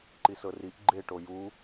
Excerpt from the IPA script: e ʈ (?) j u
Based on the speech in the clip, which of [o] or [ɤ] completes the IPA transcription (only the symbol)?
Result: o